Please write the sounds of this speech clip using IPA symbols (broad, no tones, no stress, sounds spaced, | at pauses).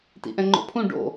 t ḭ ʔ ɛ̃ ŋ͡ǃ o̰ pʰ ũ ɖ o̰